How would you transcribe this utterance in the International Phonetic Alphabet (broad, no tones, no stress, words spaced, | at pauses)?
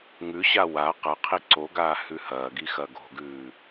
ŋʉɕa wa qɐqʰi ǀo ɡaːhʉhɐːɡi xɐɡo̤ɡʉː